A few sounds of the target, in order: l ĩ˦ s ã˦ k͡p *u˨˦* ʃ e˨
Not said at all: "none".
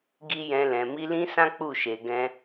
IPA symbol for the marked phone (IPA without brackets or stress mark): u˦˨